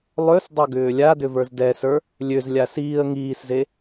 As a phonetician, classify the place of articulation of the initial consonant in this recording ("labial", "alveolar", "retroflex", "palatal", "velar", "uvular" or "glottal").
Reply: alveolar